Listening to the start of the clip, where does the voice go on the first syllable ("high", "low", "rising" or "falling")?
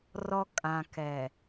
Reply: high